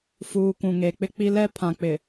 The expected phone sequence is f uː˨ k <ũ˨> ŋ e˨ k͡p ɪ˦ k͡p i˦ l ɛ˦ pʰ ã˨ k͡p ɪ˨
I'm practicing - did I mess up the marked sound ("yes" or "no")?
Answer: no